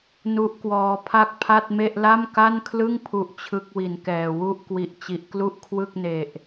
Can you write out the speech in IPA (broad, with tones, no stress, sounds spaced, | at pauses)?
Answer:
n u˦˥ ʔ k w ɔː˧ pʰ a˥˩ k̚ pʰ a˥˩ t̚ m e˥˩ ʔ l a˥˩ m k a˥˩ n kʰ l ɯ˥˩ ŋ pʰ u˦˥ ʔ t͡ɕʰ ɯ˥˩ k̚ w i˨˩ n k ɛː˨˩ w u˥˩ ʔ k w i˨˩ ʔ t͡ɕ i˨˩ ʔ k l u˥˩ ʔ kʰ w ɯ˥˩ k̚ n e˨˩ ʔ